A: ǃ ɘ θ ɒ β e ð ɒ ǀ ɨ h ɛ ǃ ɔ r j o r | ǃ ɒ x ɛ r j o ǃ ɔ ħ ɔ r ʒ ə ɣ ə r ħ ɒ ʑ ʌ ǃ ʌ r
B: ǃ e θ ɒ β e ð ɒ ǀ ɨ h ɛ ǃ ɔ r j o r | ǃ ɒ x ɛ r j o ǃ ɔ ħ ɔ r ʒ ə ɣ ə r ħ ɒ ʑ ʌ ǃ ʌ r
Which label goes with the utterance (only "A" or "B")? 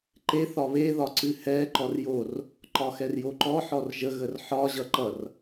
B